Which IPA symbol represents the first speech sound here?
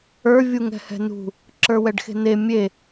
ə˞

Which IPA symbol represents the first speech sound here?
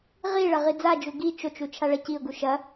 ʁ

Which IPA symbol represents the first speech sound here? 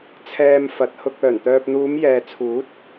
t͡sʰ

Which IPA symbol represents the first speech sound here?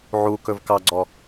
ʕ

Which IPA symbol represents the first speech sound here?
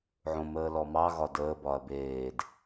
ʕ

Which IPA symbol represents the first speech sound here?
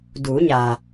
d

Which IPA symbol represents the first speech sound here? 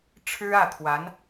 ʈ͡ʂʰ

